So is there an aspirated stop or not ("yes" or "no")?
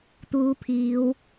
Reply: yes